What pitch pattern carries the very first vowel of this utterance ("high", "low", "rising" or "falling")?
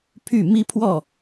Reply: falling